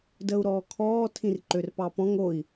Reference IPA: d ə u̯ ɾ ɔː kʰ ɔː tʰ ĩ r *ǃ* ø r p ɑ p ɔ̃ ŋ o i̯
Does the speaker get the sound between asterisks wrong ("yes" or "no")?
no